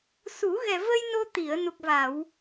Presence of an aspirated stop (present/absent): absent